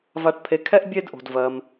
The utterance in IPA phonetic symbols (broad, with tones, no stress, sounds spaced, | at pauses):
v a˩ ʈ pʰ e˩ kʰ ɛ˧ ʔ bʲ e˧ d ʔ o̤˩ d v ɜ˩ m